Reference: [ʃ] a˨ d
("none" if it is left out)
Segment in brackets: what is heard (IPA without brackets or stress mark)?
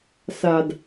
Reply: s